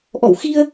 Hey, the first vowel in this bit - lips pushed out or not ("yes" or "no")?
yes